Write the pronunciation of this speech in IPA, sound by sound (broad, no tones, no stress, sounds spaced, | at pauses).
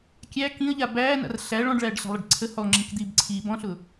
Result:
kʲ æ k ĩ ə̯ ʎ a b æː n a̰ r ɬ æ ɭ ɔ̃ ɖ ɭ æː ɖ ɬ a̤ lˠ i ɖ ǀʰ ə h ɔ ŋ͡ǁ ĩ k d̪ iː b ǀʰ iː b ɔ̃ ɬ ʊ